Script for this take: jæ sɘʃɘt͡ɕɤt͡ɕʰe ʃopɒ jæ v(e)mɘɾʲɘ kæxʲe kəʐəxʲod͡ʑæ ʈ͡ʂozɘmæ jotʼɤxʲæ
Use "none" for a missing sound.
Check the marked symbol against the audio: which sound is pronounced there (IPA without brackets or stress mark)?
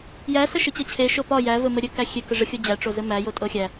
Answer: ɘ